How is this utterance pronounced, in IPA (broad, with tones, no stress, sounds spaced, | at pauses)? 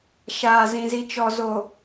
ʃ aː˨ z ĩ˨ z i˨ t͡ʃ ɔ˨ z o˨